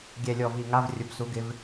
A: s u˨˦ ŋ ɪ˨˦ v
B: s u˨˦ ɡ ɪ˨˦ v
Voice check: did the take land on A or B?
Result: B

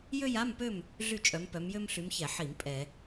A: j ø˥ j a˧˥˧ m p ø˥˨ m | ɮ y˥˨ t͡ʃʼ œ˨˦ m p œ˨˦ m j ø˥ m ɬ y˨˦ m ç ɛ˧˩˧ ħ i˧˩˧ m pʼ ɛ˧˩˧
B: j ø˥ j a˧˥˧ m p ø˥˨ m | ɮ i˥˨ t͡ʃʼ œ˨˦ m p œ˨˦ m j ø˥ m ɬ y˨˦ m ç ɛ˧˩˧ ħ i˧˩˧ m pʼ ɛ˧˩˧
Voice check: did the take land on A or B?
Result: A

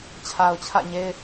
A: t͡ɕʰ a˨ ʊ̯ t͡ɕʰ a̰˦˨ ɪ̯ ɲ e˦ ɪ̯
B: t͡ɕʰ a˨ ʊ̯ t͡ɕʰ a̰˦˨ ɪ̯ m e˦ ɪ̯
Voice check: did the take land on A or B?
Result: A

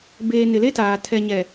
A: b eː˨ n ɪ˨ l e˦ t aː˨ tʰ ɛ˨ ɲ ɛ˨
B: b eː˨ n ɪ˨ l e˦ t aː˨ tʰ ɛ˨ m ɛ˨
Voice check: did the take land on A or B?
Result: A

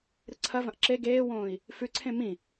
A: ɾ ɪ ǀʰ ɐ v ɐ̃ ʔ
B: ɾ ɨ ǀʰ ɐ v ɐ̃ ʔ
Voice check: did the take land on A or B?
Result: B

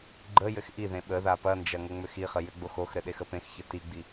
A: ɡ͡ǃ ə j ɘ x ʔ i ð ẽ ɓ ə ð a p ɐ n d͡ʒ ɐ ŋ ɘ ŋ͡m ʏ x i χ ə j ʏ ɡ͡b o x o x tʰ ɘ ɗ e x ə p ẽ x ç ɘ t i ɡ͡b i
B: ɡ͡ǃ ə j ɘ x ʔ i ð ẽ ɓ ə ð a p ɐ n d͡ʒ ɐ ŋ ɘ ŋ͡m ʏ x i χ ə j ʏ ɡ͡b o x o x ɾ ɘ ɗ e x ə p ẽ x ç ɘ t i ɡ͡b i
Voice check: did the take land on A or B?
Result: B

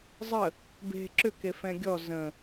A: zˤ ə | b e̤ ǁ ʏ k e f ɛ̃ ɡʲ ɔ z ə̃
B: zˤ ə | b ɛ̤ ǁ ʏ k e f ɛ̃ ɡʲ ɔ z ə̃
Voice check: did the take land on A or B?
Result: A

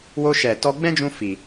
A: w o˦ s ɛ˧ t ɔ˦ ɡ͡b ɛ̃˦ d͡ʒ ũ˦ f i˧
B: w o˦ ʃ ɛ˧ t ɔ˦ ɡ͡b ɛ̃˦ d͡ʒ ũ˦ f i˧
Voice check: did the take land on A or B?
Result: B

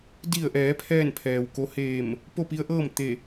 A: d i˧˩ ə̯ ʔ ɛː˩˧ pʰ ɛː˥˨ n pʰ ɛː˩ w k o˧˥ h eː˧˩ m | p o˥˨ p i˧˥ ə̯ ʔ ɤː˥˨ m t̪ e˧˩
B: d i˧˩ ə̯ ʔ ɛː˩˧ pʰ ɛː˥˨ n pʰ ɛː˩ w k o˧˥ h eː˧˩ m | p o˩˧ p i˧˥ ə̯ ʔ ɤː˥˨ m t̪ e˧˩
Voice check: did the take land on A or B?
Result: A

